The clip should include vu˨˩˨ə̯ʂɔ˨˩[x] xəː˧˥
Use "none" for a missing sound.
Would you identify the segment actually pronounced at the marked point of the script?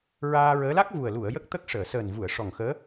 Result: ŋ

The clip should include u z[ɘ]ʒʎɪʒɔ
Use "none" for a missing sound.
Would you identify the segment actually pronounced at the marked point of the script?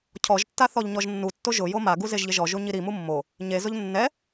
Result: e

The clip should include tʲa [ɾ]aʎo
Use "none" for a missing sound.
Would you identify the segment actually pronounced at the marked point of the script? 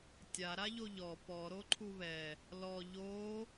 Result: ɾ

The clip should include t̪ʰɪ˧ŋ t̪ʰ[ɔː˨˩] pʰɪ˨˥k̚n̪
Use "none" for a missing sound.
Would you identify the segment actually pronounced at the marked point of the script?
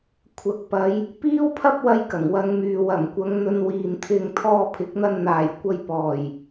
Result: ɔː˧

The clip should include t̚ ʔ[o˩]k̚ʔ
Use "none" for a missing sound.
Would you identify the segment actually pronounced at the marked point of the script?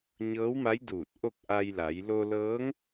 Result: o˥˨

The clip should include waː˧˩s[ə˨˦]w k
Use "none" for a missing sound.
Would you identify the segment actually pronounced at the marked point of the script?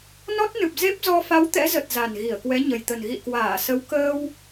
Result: ə˨˦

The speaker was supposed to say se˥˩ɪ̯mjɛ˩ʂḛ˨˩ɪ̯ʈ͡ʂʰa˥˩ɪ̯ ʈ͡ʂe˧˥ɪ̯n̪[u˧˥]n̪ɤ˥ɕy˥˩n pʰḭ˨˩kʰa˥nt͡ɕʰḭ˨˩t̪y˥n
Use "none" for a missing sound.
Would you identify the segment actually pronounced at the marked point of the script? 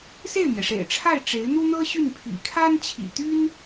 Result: u˥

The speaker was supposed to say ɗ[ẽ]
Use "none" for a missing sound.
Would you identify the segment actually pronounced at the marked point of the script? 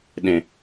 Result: ẽ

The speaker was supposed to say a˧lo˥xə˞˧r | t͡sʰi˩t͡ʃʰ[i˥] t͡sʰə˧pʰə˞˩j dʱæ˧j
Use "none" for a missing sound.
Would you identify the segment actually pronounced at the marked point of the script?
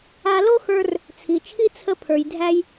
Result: i˥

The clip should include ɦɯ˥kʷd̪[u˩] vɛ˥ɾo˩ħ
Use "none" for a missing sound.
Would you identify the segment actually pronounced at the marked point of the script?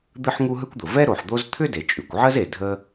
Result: ʊ˩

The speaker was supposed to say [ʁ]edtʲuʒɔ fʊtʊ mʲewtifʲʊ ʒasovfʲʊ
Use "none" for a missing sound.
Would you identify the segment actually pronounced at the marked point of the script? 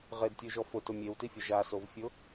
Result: ʁ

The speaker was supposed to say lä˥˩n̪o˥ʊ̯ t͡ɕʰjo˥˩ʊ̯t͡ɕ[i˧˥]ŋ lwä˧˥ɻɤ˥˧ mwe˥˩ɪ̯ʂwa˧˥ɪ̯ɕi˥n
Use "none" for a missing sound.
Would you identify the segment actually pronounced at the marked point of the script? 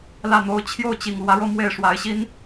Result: i˨˩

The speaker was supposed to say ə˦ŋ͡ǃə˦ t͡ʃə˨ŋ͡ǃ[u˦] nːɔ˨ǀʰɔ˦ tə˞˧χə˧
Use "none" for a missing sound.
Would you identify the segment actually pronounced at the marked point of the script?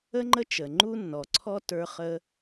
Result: u˦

